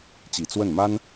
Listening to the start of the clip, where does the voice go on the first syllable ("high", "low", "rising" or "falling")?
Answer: low